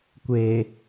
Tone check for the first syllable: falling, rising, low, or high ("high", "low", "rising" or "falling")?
low